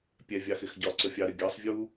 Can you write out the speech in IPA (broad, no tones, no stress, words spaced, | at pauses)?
pʲɛ vʲɑxɪxɟɒ ǀəfʲɑɾɪ ɡʲɑsˤvʲu